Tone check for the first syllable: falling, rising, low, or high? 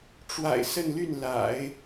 low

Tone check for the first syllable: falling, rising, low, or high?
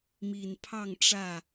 low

